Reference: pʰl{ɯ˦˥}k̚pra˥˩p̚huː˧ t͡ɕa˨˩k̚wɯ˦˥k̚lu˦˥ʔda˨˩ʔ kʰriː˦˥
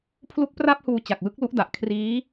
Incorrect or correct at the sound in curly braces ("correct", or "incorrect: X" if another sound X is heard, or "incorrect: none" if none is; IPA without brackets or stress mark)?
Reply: incorrect: u˦˥